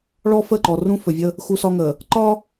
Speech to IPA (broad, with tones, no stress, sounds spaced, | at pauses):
ɭ ɔ˦ f ə˦˨ ǃ ɔ˨ r ũ˦ f ɵ˨ vʲ ə˦ | x u˦ s ɒ˦ ŋ ə˨ | ǃ ɒ˦